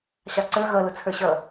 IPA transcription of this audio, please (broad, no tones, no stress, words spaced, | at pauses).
ɕɑǀə˞ ɣʌ lʊt͡sʰə˞ɕʌ